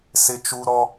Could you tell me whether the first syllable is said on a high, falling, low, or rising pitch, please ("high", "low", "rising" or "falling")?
high